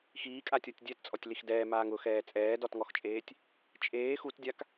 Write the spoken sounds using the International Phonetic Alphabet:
x iː kʼ a tʲ ɔ tʲ dʲ ɛ t t͡sʼ ɔ tʲ l i x d ɛː m aː ŋ ʊ x ɛː t͡sʼ ɛː d ɔ t ŋ ɔ x t͡ʃʼ eː tʲ | t͡ʃʼ eː x u t dʲ a k

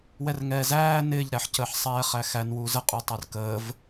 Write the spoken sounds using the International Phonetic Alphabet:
w ɛ r ŋ ɛː z æː n ɪː ʎ ɾ æ ħ c əː ħ sˤ ɛː χ æ x æ n w uː z ə qʼ u tˤ ʌ r k əː v

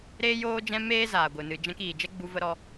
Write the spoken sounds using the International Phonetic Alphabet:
ɾ eː˦ j oː˦ d͡ʒ ɛ̃˦ m eː˦ z aː˨ ɡʷ ɨ˨ n ɨ˨ d͡ʒ ɛ̃˧ k iː˨ d͡ʒ ɛ˦ ɡ͡b u˧ v ə˧ ɾ ɔ˧

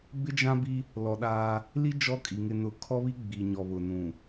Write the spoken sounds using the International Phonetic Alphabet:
b ɪ˦ d͡ʒ ã˦ b i˦ | l ɔ˨ ɗ aː˦ | l i˦ d͡ʒ ɔ˦ kʼ i˨ ŋ ɪ˨ n ʊ˨ kʰ ɔ˦ β i˦ ɡ͡b i˨ ɲ ɔ˨ β ʊ˨ n ũ˨

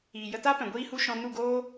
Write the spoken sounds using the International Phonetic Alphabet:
iː˨ j ə˧ t a˦ p ɛ̃˨ ɡʷ iː˧ h u˧ ʃ ɔ̃˧ n u˦˨ ɡ oː˦

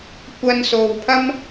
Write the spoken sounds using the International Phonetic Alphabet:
kʷ ɐ˧ n s o˨ w pʰ ɐ˥ m

